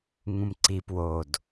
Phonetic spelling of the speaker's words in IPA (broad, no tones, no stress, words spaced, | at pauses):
ŋũmǀi pwod